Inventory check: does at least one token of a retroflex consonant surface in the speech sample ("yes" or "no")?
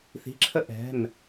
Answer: no